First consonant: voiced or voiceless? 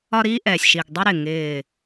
voiced